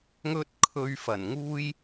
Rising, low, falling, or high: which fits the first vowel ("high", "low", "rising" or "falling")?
high